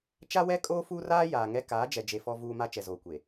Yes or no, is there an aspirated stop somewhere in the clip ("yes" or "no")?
no